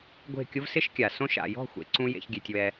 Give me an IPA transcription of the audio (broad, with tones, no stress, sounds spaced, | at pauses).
ɡʷ e̤˦˨ kʲ ʊ˦ v s ɪ˦ ʃ kʲ a˨ s õ˧ ʃ a̰˨ j ɔ̤˦˨ xʷ ḛ˨ ǀ ũ˦ j ḛ˦ ç ɡʲ e˧ tʲ w ɛ˧